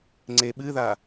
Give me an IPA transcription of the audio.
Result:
ŋ͡ǀ e ɓ ɨ ð a

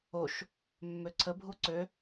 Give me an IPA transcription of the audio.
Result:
o ʃ | mː ø ǀʰ ə bʱ u ǀ ø

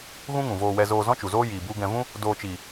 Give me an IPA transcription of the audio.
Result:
ɣ ũ˦ ŋ ũ˨ v oː˧ w ɛ˧ z oː˧ z ɔ̃˦ t͡ʃ u˨ z oː˦ j iː˧ b u˦ ɡ ɛ̃˧ v ũ˦ | d oː˧ t͡ʃ iː˨

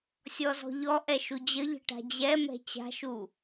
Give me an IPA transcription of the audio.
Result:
sʲ ɔ z ɔ̤ ʎ ɔ ʔ ɛ ʃ u d͡ʑ ə ʎ ə̤ ʈ a̤ d͡ʑ ɛ m ɛ̤ t͡ɕ a̤ ʃ u

